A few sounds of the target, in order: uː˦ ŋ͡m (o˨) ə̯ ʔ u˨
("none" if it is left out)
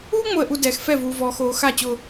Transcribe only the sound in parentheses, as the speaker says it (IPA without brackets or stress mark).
o˨